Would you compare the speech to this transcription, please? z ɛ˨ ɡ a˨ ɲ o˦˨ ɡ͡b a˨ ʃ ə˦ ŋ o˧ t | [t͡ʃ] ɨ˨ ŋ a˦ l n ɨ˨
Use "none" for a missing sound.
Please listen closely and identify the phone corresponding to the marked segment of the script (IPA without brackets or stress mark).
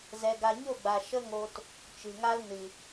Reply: t͡ʃ